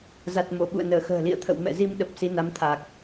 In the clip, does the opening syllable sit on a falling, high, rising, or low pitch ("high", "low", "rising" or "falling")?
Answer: low